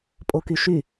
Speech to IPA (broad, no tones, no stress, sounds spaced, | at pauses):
pʼ o k y ʃ y